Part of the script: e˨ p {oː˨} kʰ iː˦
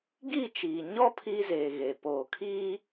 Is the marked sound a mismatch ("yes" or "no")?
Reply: no